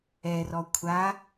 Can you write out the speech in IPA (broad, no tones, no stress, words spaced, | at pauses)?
ɛrɔ kʷʰa